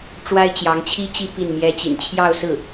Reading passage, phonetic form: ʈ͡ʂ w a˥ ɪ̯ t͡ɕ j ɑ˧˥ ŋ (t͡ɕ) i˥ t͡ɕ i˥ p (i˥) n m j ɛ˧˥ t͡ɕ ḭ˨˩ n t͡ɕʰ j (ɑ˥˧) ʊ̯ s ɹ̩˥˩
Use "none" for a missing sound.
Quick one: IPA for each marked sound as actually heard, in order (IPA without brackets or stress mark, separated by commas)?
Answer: t͡ɕʰ, i˥˩, ɑ˥˧